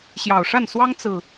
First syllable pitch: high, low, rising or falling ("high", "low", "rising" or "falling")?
low